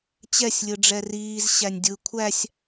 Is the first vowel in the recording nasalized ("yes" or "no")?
no